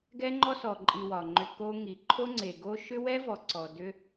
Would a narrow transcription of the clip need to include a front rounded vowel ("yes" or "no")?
yes